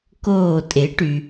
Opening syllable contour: falling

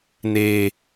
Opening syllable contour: low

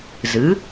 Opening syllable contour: rising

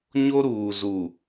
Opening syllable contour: high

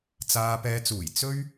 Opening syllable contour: low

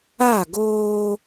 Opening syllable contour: falling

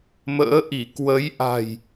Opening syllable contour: rising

